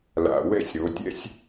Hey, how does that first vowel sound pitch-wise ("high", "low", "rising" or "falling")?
low